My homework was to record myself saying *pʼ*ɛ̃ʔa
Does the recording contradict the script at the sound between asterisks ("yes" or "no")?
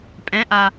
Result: no